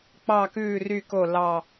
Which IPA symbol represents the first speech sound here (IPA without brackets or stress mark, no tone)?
k͡p